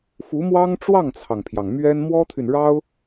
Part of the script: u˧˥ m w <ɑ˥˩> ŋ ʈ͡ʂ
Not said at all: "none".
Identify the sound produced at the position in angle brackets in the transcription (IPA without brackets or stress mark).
ɑ˥